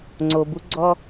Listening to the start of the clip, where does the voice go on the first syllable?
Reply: low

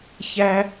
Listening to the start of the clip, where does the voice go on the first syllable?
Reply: high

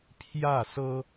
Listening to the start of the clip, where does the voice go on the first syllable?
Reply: falling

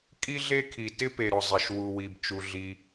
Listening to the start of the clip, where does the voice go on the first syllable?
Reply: high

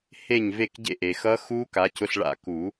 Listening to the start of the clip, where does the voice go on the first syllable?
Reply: falling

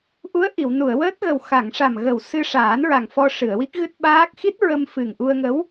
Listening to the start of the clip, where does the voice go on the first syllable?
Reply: rising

